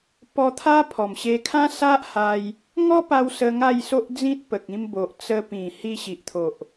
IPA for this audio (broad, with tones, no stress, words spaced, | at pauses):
pɔ˧t̪ʰa˦pʰɔ˨˩mɕe˧ kʰã˦sa˦ʔha˧j | ŋɔ˦pa˧w sə˧ŋa˥˧jso˦ʔd͡zĩ˦t̚ pə˨k̚ĩ˧mbo˨ʔ t͡sə˧pĩ˨˩ hi˧ɕi˨ʔt̪ʰo˨ʔ